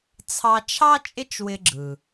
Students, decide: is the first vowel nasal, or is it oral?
oral